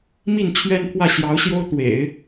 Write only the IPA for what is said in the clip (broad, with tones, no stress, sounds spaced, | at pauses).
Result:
m i˥˩ n t͡ɕʰ ɥ ɛ˥ n pʰ w ä˥˩ ɕ j ɑ˧˥ ʊ̯ ɕ j o˥ ʊ̯ t̪ w ḛ˨˩˦ ɪ̯